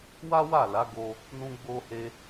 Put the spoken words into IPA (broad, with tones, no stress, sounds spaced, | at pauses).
w a˦ w a˦˨ l a˨˦ ɡ o˦ | n ũ˦ ɡ͡b o˦ h e˦